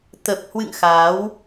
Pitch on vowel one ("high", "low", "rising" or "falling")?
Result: low